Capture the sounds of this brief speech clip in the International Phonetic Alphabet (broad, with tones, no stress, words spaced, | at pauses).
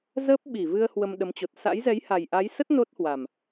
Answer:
zəː˦˥p̚ɓi˧˩vɨ˧ə̯ hwə˧mɗə˨˦mt͡ɕo˨˩t̚ sa̰˧˥j zɛ˨˦jha˨˩jʔa˨˦jsə˦˥t̚ no˦˥t̚hwa˨˩m